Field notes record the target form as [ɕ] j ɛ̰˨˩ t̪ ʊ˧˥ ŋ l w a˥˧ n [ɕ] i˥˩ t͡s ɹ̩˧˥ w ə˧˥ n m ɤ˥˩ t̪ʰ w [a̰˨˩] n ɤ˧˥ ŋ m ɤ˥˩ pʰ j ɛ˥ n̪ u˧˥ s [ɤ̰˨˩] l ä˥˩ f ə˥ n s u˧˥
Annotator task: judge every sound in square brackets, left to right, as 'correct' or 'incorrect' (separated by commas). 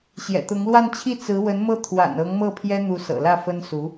correct, incorrect, correct, correct